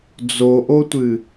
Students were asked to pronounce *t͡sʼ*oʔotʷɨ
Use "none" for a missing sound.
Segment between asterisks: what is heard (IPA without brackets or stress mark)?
d͡z